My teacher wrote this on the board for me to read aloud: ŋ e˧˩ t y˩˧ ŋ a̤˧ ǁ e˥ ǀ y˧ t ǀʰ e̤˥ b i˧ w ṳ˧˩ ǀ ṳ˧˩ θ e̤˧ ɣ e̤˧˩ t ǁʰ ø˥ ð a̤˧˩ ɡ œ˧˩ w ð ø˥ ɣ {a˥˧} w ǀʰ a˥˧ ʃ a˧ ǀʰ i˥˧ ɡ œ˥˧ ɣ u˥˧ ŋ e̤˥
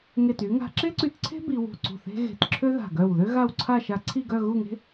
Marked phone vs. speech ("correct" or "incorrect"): correct